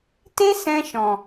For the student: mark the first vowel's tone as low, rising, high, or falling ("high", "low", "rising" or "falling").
high